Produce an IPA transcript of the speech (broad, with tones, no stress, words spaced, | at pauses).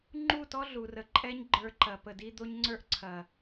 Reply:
ŋ͡ǃu˦˨tɔ˦ ɮu˨ rə˨ǃʼɛ˦ɲ ɡ͡ǃə˞˧ǃɐ˨pə˨di˦ d̪o˦ɲŋ͡ǀə˞˦ʔǀʰɐ˨